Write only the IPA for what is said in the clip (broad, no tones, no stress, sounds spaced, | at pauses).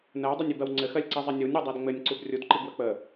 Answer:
n ɜ w dˤ ɘ nʲ i b ɜ w ŋ͡ǀ ɘ x ɜ lʲ ǀ i zˤ ɘ nʲ u nʲ ɾ u dˤ ɜ d ŋ͡m ɘ nʲ ǀ u b rʲ u d ǃ i ɡ w ə k͡p ə